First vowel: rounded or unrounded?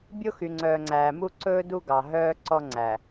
rounded